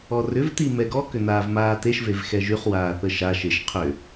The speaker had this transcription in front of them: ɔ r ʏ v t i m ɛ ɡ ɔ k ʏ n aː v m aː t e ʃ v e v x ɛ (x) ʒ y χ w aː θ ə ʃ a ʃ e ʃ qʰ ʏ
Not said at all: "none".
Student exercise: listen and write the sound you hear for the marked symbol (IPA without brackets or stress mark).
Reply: none